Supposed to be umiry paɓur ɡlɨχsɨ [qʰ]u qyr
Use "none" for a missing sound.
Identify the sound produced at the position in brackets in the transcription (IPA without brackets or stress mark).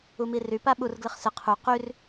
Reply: qʰ